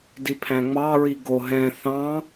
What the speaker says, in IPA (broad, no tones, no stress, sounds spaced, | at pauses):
d i pʰ æ̃ ŋ͡m ɑ ɹ i ɡ o ɦ ɛ̃ θ ɑ̃